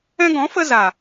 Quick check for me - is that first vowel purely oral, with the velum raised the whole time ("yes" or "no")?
no